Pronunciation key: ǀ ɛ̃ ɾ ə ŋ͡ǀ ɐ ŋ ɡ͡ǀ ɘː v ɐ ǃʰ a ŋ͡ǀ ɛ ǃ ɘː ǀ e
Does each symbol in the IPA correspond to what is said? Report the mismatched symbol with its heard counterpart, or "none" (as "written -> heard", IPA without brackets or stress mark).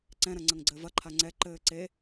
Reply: ə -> ɐ